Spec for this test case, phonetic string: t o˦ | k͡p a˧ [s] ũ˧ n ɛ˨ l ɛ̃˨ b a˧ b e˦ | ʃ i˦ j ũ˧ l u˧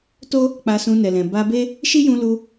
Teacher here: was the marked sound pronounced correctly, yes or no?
yes